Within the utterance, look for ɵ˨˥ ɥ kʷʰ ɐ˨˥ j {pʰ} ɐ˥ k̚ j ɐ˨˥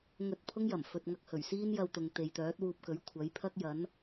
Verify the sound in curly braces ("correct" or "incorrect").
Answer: correct